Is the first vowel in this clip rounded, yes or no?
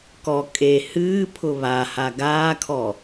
yes